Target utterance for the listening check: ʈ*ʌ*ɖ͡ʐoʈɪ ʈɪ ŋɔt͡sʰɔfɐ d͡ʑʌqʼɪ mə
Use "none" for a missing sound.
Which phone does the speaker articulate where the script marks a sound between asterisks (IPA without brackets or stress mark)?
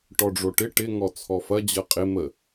ɔ